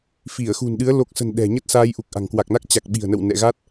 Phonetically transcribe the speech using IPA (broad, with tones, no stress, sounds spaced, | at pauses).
f i˧˩ ə̯ x ṳ˨˩ n ɗ ɨ˨˦ ə̯ l o˨˩ k̚ s ə̤˨˩ n ɗ ɛ̤˨˩ ɲ ə˦˥ t̚ s aː˧ j ʔ u˨˩ k̚ ʔ a̤˨˩ ŋ k w a˨˩ k̚ n a˦˥ k̚ t͡ɕ a˨˩ k̚ ɓ i̤˨˩ ə̯ n ə̰˧˨ w n ɛ̰˧˨ ɣ a˦˥ t̚